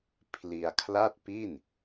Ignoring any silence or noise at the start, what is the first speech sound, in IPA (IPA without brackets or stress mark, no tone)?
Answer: pʰ